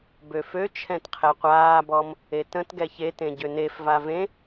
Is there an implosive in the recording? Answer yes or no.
no